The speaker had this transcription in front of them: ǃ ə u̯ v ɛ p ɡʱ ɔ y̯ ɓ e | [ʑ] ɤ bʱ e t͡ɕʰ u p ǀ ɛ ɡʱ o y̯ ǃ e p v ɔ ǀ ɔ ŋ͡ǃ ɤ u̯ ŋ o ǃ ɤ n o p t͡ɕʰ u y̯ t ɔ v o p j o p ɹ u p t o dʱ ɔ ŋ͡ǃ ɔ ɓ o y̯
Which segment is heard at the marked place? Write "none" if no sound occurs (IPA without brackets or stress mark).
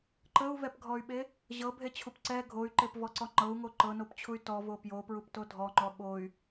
ʑ